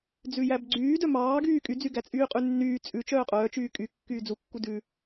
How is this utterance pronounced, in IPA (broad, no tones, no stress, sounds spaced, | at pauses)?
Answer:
d͡z ʉ j æ b ɡ͡ǀ yː d œ m ɑː ɡ yː kʼ y d͡z y ɡ æ t͡sʼ yː qʼ ʉ nː yː t͡sʼ ʉ t͡ʃ œː qʼ œː t͡ʃ yː kʼ y kː yː d͡z u kː u d ʉ